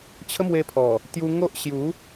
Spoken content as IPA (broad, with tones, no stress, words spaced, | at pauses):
t͡ɕʰə˦mwe˧pʰɔ˨˩ | t̪ju˧ ŋo˦ʔ ɕju˨˦